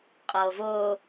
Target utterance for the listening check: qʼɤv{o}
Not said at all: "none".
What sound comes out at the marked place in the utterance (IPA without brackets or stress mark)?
o